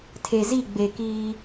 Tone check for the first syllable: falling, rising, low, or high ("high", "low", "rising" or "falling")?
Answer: low